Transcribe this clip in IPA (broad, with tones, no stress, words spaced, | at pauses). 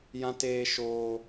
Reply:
jã˦teː˦ʃoː˦